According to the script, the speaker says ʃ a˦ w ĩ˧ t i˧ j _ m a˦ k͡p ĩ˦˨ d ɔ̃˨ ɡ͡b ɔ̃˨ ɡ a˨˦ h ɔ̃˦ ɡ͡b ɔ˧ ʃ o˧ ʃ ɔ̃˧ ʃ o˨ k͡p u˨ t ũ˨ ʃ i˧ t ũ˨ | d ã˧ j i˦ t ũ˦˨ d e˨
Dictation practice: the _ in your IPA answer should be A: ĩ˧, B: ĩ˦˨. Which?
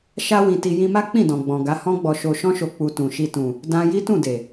A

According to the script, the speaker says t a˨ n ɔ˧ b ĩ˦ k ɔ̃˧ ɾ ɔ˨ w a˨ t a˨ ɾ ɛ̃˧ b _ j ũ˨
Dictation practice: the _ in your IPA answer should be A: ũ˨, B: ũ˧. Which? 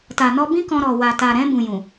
A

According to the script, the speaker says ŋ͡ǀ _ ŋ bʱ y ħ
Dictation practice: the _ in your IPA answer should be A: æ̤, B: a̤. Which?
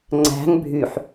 A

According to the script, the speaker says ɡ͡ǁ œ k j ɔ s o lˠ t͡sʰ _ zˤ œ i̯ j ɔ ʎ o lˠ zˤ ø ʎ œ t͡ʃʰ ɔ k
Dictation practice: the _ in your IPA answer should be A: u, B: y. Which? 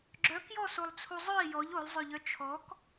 A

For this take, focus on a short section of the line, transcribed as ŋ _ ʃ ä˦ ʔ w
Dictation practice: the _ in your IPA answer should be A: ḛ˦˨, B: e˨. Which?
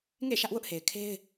A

